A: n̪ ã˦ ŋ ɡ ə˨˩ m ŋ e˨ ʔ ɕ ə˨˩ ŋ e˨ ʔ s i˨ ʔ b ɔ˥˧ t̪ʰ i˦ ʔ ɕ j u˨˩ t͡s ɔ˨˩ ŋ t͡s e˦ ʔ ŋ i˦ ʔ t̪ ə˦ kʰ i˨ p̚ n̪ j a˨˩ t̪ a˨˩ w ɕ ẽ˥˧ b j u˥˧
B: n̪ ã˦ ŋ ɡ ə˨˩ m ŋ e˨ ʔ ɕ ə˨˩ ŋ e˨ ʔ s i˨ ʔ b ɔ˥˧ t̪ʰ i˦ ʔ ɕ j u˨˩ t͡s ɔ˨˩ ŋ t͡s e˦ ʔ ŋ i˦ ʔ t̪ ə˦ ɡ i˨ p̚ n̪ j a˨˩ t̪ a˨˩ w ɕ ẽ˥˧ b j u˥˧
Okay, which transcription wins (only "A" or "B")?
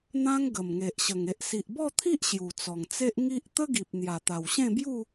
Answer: B